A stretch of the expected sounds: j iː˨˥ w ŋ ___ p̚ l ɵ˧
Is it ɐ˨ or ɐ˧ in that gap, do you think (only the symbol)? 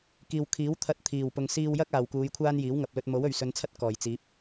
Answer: ɐ˨